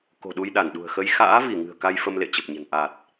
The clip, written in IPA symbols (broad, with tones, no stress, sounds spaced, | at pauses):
k o̤˨˩ ɗ u˧ j ɗ a˧˩ n ɗ ṳ˨˩ ə̯ x ə˧ j x a̰ː˧˥ v i˧˩ ŋ ɨ̤˨˩ ə̯ k a˧ j f ə˧ m l ḛ˧˨ t͡ɕ ə˨˩ p̚ ɲ ə̤˨˩ n ʔ a˨˩ t̚